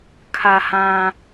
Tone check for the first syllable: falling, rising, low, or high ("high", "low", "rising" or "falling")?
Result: low